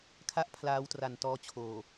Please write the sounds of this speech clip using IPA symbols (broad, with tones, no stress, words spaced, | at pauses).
kʰa˥˩ʔ pʰlaː˦˥wtra˩˦ntɔː˦˥ t͡ɕʰoː˨˩